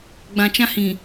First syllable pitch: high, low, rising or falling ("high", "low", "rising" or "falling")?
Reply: low